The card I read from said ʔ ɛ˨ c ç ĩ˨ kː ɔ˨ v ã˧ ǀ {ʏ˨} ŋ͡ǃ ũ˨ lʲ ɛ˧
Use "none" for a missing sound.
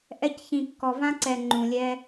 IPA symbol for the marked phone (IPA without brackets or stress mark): ɛ˨